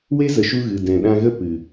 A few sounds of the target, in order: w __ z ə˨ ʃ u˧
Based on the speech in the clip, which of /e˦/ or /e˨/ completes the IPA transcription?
e˦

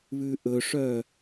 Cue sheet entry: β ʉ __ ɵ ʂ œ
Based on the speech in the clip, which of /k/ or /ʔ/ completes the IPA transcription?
ʔ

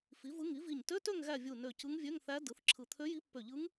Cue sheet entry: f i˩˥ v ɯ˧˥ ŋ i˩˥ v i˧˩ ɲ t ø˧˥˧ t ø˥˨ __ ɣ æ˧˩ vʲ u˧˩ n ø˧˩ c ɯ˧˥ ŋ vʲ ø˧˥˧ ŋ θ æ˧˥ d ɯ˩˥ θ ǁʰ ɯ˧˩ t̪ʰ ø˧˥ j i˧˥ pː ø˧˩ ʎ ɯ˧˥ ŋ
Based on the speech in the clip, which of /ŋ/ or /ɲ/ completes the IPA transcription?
ŋ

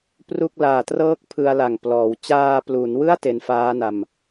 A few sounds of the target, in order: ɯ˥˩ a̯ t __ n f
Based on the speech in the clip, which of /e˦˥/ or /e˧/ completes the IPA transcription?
e˧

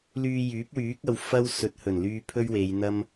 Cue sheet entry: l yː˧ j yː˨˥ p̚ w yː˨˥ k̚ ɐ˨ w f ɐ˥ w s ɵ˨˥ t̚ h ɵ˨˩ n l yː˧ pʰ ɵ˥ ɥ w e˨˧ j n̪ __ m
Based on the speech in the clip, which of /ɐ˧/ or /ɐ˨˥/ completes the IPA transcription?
ɐ˧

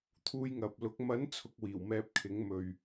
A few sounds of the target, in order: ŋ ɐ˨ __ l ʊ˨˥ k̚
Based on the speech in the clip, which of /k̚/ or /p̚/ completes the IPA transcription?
p̚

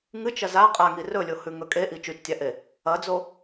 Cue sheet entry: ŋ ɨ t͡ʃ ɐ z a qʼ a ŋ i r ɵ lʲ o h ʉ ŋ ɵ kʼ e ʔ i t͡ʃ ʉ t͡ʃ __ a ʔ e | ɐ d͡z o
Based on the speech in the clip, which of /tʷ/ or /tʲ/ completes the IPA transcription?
tʲ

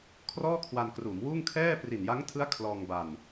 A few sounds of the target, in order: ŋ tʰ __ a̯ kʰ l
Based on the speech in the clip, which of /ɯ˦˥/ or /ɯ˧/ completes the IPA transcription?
ɯ˦˥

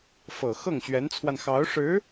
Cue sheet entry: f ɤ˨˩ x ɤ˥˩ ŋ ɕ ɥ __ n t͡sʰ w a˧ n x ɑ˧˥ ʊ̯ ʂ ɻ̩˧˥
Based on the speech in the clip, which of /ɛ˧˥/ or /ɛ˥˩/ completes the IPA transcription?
ɛ˧˥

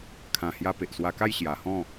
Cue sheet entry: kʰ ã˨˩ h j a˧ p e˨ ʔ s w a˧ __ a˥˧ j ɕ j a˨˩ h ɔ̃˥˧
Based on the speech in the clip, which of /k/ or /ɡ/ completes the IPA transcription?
k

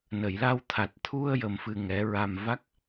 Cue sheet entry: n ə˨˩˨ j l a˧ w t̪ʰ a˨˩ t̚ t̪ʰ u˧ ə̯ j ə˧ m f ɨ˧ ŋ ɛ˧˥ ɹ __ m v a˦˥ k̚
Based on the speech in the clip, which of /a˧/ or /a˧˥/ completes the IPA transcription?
a˧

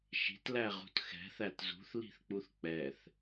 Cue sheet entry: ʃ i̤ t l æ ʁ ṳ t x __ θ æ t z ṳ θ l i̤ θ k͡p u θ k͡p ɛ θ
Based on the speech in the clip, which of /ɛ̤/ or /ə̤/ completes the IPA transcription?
ɛ̤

